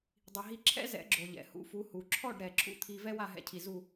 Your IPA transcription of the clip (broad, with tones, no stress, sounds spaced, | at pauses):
dˤ i˩ ɦ i˧ ǁʰ ɛ̰˥ z ɛ̰˩˥ ɡ͡ǁ o˩ ʎ ɛ̰˩ h ṵ˩˥ f u˩˥ h u˩ ǁʰ ɔ˥˩ ɖ ɾ ɛ˩ ǁʰ ṵ˥ t̪ʰ i˧ v ɛ˥ w a˥˩ ɦ ɛ̰˧ cʰ i˩ z u˥˩